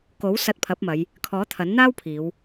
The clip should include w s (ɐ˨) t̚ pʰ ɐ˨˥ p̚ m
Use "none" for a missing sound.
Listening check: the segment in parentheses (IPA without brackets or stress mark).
ɐ˧